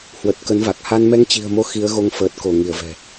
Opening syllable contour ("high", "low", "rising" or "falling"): low